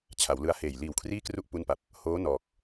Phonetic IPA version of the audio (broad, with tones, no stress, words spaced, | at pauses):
t͡ɕʰa˩˦wlɯ˦˥a̯heː˨˩j liː˨˩wkʰriː˥˩kru˥˩ʔ pu˥˩npa˦˥p̚ | hoː˦˥ nɔː˨˩k̚